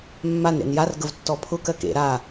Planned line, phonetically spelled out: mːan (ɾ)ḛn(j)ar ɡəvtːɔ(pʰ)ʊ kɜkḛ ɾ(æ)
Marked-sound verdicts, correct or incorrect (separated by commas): correct, correct, correct, incorrect